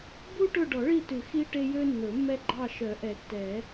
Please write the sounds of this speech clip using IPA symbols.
b u˦ ʈ ɵ˦˨ ɖ ɔ˨˩˦ ɭ i˦˨ t ʉ˨˩˦ x i˦ ʈ e˦ j ø˦ nː ɵ˨˩˦ mː ɛ˦ ɡ͡ǃ ɑ˦˨ ʃ œ˨˩˦ ʔ ɛ˨˩˦ tː ɛ˨˩˦

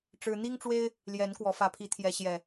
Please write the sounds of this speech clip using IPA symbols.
ʈ͡ʂ ɻ̩˦ n̪ i˦ ŋ ʈ͡ʂ w e˦ ɪ̯ | l j ɛ˨˦ n k w ɔ˨˦ f ä˨˩ pʰ i˨˦ t̪ʰ j ɛ˨˦ ɕ j ɛ˨˩

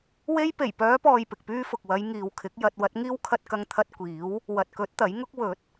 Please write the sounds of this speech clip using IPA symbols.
w e˥ j p e˨˩ j p œː˨˧ p ɔː˨ j p ɪ˨ k̚ p yː˥ f ʊ˨ k̚ w ɐ˨˧ j ŋ iː˨ w kʰ ɪ˨˥ k̚ j ɐ˧ t̚ w ɐ˨˥ t̚ ŋ iː˥ w kʰ ɐ˧ t̚ k ɐ˧ ŋ t̪ʰ ɐ˥ t̚ kʷ iː˨˥ w | w ɐ˨ t̚ k ɵ˨˥ t̚ t̪ ɐ˨˥ j ŋ ʊ˥ k̚ w ɵ˨˥ t̚

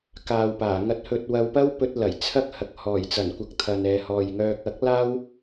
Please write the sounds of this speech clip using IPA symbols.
k aː˨ w p aː˨˩ ŋ ɐ˧ t̚ h ɵ˧ t̚ w ɐ˧ w p ɐ˥ w p ɵ˧ t̚ l ɐ˨˩ j t͡sʰ ɐ˥ k̚ h ɐ˨ k̚ h ɔː˨˩ j t͡s ɐ˨˩ n kʷ ɐ˨ k̚ t̪ʰ ɐ˨ n ɛː˨ h ɔː˨ j ŋ œː˧ k̚ ɐ˨˥ k̚ l aː˥ w

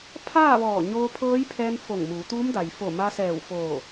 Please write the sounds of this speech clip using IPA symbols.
pʰ aː˥˨ ʋ ɔː˧˩ ɲ oː˧ pʰ ɤː˧˥ j pʰ ɛː˧ n f o˧˩ ŋ m uː˩˧ t̪ uː˧˥ m d a˩ j f o˧˩ m a˧ s ɛː˧˩ w f oː˧˩

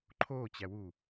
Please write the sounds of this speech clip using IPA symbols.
ǃʰ oː t͡ɕ æ w u

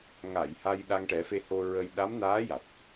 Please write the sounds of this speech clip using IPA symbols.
ŋ a˨˩˨ j h a˧ j ɗ a˧ ŋ ʈ ɛ˨˩˦ f e˧ h o˧ ɹ ə˧ j ɗ a˧˥ m n aː˧˥ j a˨˩ t̚

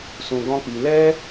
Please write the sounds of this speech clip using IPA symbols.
s ũ˧ ɡ ɔ̃˦ k͡p i˧ l ɛ˦

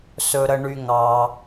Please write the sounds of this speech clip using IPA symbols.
s ɵ˩ ɾ ə˩ ɳ y˩ ŋ ɑ˩

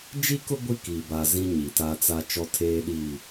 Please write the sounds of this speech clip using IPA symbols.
d͡ʒ i˦ k ʊ˦ ɡʷ i˦ k i˨ b a˨ z ĩ˦ ɲ i˨ t aː˦ t͡s a˦ t͡ʃ ɔ˦ tʰ eː˦ ɗ i˦˨

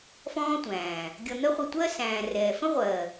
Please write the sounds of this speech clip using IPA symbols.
f ɔ̃ː˦ tʷ æ̃ː˨ | ɡʲ ʌ˧ n̪ ɜ˦ χʷ ʌ˧ tʷ ɜ˦ s æ̃ː˨ r ɛː˨ f ə̃˦ ʁʷ ɜ˨

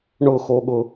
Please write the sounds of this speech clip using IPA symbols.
ɳ ʊ x o ɠ ʊ

